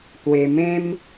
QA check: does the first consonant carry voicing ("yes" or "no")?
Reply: no